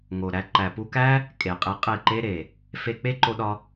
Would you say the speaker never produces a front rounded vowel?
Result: yes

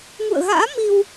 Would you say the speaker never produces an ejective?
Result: yes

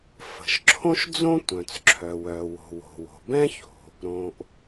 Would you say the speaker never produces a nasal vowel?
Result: no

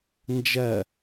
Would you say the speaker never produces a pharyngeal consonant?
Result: yes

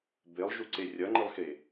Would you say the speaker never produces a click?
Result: no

